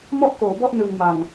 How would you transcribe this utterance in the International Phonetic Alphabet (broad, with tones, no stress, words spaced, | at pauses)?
mɔ˥˩ʔkoː˩˦bɔ˥˩ʔ nɯ˨˩ŋma˨˩ŋ